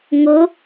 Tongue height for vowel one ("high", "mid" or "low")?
high